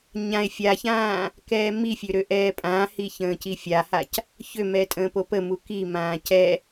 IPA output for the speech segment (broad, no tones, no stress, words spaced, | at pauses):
ɲãe̯ fʲaçãː | kɛːmifʲø ɾøʔɛːpʼãːhi çə̃ːcifʲahac | çømɛ tʼə̃ːpopəmu kimãː cɛ